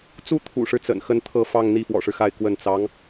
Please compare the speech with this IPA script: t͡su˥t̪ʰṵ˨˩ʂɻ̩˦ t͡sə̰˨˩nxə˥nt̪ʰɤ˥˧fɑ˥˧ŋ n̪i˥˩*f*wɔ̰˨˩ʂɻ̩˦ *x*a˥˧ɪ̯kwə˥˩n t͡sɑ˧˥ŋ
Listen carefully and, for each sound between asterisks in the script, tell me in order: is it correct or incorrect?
correct, correct

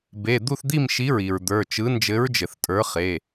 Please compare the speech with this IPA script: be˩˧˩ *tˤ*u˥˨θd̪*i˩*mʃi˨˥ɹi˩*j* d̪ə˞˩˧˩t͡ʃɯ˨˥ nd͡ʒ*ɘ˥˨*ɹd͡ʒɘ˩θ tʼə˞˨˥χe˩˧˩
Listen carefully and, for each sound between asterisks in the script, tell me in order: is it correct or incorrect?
incorrect: d̪, incorrect: i˥˨, incorrect: ɹ, incorrect: ɘ˨˥

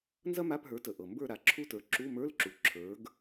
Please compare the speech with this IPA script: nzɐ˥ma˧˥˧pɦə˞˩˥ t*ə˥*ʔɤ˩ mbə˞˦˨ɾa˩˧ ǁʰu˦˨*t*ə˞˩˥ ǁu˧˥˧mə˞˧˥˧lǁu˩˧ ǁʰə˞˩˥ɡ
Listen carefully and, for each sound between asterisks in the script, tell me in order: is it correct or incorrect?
incorrect: ə˩, correct

